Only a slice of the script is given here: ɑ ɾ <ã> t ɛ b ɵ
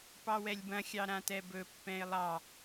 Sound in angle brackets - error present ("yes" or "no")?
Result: no